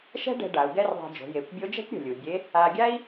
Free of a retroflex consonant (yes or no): no